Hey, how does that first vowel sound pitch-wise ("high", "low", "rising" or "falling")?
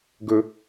high